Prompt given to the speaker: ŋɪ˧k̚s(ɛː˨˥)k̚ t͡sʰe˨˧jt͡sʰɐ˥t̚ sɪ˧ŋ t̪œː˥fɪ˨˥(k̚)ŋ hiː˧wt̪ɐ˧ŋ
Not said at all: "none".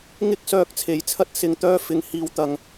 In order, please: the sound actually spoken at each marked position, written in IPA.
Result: œː˨˥, none

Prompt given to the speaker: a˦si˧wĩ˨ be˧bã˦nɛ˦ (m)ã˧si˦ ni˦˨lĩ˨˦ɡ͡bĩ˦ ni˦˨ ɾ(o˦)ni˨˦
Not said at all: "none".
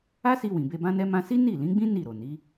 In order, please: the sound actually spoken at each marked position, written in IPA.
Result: m, o˨

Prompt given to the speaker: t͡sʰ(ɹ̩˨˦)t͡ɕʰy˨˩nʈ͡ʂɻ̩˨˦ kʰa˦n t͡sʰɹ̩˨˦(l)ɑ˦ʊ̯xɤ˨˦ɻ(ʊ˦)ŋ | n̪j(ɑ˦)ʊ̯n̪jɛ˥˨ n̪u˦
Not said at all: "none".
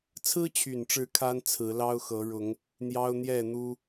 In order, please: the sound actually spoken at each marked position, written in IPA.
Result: ɹ̩˦, l, ʊ˨˦, ɑ˦

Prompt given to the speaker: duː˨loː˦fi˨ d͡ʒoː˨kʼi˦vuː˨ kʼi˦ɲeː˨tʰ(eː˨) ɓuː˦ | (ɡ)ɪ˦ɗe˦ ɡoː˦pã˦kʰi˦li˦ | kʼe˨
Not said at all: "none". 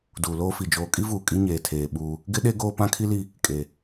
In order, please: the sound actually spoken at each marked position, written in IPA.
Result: eː˨, ɡ

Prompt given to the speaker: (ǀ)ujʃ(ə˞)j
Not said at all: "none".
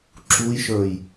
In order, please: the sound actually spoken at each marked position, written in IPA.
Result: ǁ, ə˞

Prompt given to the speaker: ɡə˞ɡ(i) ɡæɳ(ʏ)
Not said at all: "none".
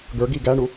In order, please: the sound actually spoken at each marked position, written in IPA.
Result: i, u

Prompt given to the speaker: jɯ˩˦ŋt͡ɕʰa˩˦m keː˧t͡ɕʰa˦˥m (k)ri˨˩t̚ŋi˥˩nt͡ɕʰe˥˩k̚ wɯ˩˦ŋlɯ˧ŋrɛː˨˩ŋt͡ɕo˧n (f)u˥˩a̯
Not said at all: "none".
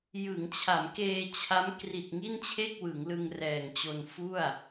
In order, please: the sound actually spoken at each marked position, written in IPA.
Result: k, f

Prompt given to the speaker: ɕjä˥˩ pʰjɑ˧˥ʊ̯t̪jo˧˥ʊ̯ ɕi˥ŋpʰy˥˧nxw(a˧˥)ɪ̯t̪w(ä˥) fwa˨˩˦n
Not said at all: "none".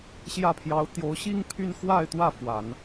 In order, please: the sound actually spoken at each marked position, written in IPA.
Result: a˥˧, ä˥˩

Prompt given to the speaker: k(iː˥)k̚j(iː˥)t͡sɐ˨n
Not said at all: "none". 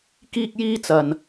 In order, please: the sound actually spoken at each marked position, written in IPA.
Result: iː˥, iː˥

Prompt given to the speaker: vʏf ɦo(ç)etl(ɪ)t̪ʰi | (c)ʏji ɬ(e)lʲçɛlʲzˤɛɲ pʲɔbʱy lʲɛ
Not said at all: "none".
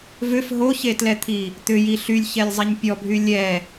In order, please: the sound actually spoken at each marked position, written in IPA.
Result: ç, ɛ, t̪, y

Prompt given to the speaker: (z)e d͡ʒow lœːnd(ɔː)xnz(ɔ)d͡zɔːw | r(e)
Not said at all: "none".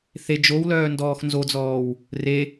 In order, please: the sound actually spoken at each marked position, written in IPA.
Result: θ, ɔː, o, e

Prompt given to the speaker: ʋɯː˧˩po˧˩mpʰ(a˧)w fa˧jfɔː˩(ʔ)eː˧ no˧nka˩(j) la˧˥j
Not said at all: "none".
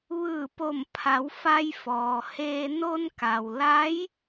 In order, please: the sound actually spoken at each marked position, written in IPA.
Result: a˩˧, h, w

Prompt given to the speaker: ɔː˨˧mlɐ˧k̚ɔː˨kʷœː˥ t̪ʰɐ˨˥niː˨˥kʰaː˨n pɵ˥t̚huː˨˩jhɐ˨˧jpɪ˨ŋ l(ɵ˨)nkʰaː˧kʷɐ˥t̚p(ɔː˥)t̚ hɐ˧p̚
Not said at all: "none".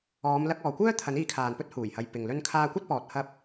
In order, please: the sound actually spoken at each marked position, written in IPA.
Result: ɵ˧, ɔː˨

